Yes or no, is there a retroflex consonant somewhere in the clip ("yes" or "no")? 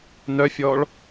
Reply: yes